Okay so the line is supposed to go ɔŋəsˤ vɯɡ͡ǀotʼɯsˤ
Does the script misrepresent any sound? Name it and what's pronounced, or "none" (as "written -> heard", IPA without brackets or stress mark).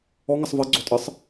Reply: none